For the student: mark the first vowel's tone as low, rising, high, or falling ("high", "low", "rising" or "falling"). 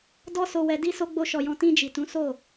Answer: high